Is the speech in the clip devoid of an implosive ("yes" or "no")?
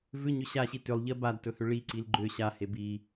yes